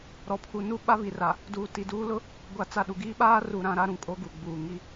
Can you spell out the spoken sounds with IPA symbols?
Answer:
ɾ ɔ˨ pʰ u˨ n u˦ ɓ a˦ β i˨ r a˨ | d uː˨ t i˨ d uː˦ l ʊ˦ | ɡʷ a˨˦ t͡s a˨ ɗ u˨ ɡ iː˦ ɓ aː˦ r u˨ ɾ ã˦ ɾ a˦ ɾ ũ˨ kʼ o˦ ɡ u˨ ɡ͡b uː˨ ŋ i˦

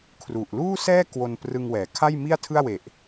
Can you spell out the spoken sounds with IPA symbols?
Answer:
kʰ r u˨˩ ʔ l uː˥˩ s ɛː˥˩ k w o˧ n p r ɯ˧ ŋ w ɛː˩˦ kʰ a˥˩ j m i˥˩ a̯ tʰ ɯ˥˩ a̯ w e˨˩ ʔ

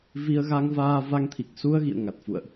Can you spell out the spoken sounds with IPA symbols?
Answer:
v i˧ ə̯ ɣ a˧ ŋ v aː˧ v a˧ ŋ t̪ʰ i˨˩ k̚ s u˧ ə̯ ɣ ḭ˧˨ ə̯ ŋ a˨˩ t̚ f ṵ˧˨ ə̯ ʔ

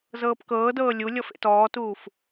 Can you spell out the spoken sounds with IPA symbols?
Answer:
z ɤː p k ɤː d ɤː lʲ u lʲ ɔ f ḛ t ɔː t uː f

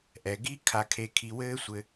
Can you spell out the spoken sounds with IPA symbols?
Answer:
ʔ ɛ˩ ɡ i˦ kʰ a˨ kʰ e˨ kʰ i˨ w ɘː˦ sʷ ɘ˨

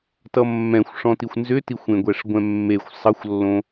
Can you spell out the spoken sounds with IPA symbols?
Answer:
t ʌ mː ɛ̃ xʷ ʂ ɔ̃ t i xʷ n z ʏ t i xʷ ẽ ɡʷ ɛ ʂ ɡʷ ɛ̃ mː e xʷ sˤ ʌ xʷ lː õ

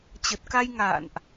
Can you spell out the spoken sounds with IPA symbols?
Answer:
t͡ɕ ə˨˩ t̚ k a˧ j ŋ a̰ː˧˨ n ʔ

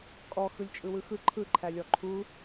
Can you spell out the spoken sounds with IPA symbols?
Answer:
kʼ ɔ x ɯ lʲ t͡ʃʼ ɯ w ɯ x ɯ ǃʰ ɯ ǃʰ æ lʲ ɔ ǃʰ u

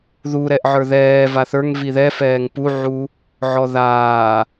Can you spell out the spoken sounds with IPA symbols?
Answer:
ð u ɾ ɛ ʔ ʕ ə˞ ð ɛː v a θ ə˞ ŋ v i ð ɛ f ɛː ŋ p u ʕ u | ʕ ɔ ð aː

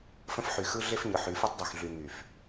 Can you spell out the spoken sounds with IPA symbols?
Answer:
f ə̃˦ f ħ y˨ x ɯ˦ ɮ e˦ f ɲ ɯ˨ ħ y˨˦ f ɯ˦ tˤ dˤ u˨ x ɮ y˨ ŋ y˨ f

